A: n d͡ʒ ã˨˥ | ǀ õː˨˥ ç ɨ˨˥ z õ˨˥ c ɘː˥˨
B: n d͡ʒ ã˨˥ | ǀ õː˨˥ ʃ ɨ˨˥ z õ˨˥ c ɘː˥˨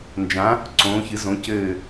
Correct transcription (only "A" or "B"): A